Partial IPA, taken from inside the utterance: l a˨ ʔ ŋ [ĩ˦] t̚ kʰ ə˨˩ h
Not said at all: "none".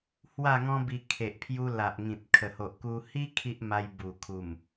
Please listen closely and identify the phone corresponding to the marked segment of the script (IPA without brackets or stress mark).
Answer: ĩ˨